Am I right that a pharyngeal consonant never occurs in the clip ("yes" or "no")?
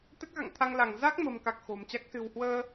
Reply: yes